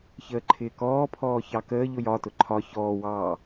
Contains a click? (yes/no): yes